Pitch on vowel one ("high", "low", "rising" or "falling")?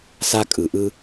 high